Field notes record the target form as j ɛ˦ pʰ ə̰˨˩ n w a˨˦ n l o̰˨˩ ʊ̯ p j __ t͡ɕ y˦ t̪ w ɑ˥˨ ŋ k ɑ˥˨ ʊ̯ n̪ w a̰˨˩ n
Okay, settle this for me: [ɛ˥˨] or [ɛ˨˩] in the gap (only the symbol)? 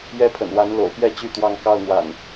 ɛ˥˨